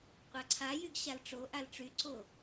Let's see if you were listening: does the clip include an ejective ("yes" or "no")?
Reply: no